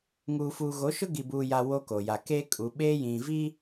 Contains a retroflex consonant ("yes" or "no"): no